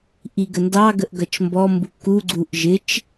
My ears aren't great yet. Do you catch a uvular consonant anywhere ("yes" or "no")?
no